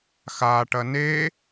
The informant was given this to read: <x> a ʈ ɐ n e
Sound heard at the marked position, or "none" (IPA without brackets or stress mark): x